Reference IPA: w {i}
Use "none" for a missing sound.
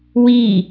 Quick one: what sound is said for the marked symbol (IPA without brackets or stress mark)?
i